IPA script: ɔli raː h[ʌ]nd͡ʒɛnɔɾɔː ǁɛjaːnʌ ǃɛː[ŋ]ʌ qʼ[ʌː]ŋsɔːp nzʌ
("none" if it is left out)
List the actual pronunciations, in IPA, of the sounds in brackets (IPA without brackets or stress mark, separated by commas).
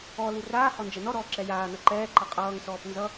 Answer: ɔ, ǃ, ʌː